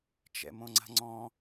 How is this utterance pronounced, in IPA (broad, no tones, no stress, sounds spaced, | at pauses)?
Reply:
t͡ʃ ɛ̰ m õ ŋ͡ǀ a̤ ŋ͡ǀ ɔ̃